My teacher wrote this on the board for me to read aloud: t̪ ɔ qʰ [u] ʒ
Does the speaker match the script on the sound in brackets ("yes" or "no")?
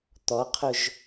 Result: no